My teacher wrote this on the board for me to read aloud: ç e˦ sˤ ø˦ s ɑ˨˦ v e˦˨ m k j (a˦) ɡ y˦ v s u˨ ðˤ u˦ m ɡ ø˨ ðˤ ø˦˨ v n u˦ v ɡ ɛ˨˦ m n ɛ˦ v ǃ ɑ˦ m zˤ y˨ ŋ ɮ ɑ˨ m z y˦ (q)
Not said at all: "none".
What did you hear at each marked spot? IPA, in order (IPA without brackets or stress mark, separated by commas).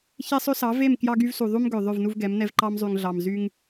ɑ˦, ŋ